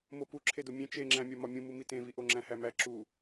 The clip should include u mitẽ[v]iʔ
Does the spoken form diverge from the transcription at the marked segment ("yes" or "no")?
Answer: no